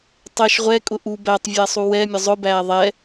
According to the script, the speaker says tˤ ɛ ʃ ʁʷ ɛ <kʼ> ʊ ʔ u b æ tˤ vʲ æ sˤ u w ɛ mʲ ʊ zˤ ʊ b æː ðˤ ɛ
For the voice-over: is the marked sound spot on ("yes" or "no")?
yes